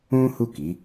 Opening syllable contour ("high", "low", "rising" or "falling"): high